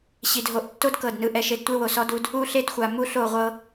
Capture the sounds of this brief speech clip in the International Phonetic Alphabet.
ɕ i˨ d ɦ o˨ ʔ tː o˦ d k ɤ˦˨ d n ɯ˦ ʔ ɛ˦ ʃ e˦ d tʷ e˦ w o˨ s ɔ˦ d u˦ d | u˦˨ ɬ e˦ d xʷ a˨ m u˦ ɬ o˦˨ ʁʷ ɤ˦

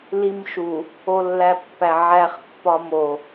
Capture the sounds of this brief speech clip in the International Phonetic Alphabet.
l i m ʃ u | o lː æ pː æ ʕ æ χ pː ɒ m o

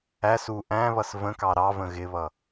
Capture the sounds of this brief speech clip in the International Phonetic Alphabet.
æ s u ʔ æ̃ β ʌ s v ə̃ k ɑ ɾ ɑ v ə̃ ɣ ɪ β ʌ

